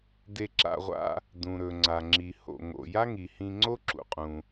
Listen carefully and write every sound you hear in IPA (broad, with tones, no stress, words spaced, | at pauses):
de˧ǁa̰˧ʁʷa̰˧ | dũ˩ɾɵ˩ ŋ͡ǀa˩ŋ͡ǁi˩ho̰˩ŋo̰˩ ja˥ŋi˩hĩ˧ŋ͡ǀo˥ ǁṵ˩qʼũ˩